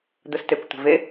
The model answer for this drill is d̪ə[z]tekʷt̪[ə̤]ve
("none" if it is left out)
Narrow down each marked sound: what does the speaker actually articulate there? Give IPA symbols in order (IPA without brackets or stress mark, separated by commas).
s, ə̤